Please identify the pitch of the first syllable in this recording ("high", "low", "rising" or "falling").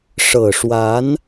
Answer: low